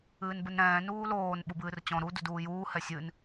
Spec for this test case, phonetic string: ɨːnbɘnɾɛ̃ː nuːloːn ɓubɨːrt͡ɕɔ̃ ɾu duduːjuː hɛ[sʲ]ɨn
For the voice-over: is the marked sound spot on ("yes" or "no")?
yes